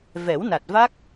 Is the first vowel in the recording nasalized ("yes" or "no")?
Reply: no